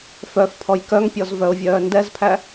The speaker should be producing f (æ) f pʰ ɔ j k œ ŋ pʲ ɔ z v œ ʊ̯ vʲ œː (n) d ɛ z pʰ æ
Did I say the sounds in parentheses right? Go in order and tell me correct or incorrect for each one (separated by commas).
incorrect, correct